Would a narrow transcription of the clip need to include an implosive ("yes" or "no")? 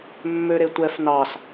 no